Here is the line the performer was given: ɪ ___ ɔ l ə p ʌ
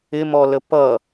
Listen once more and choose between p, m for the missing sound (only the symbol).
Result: m